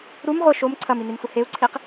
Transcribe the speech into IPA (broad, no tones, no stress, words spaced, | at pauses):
ɾum ʁʷɪ ʃom ǀʰɐminimsʷɪ heu̯ǀʰiq